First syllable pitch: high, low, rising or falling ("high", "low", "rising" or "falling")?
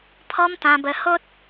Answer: high